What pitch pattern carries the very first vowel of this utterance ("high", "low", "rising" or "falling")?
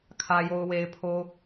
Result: low